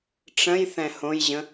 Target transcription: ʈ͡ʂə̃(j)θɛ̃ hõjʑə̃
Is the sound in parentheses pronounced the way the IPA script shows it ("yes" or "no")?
yes